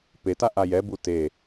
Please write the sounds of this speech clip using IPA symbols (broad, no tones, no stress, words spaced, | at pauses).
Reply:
peta ʔajɛbu te